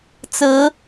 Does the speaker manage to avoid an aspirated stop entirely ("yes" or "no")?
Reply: yes